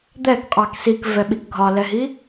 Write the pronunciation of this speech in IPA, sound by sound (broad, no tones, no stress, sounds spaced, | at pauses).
d̪ ɛ k qʼ ɑ k s i k v ɛ ɓ i k ɡʱ ɒ l ɛ ɦ i